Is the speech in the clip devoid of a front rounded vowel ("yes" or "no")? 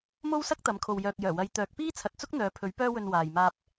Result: no